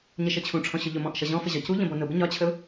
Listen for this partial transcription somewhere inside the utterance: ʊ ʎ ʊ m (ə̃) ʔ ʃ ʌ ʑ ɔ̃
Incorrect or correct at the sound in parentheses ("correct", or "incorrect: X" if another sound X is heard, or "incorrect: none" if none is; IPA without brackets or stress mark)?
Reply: incorrect: ɔ̃